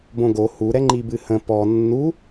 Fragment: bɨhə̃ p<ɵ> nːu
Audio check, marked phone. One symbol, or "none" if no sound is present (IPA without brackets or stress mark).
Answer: ɔ